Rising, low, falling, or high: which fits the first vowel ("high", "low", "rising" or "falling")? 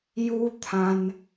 high